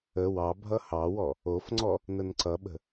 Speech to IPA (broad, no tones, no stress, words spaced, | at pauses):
ə wɑ bʱʌhɑwɔ | ofŋ͡ǀɔ | nənǀʌɓə̤